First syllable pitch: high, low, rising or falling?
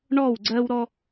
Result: falling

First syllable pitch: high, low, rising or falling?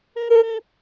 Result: high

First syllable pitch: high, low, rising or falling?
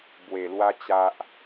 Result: low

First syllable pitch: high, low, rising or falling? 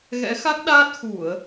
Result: rising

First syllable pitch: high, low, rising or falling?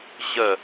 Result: falling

